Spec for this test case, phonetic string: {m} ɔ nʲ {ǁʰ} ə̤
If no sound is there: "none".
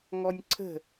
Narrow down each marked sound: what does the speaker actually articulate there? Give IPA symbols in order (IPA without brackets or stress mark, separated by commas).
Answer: ŋ, ǀʰ